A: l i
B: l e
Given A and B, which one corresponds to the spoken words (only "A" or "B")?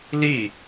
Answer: A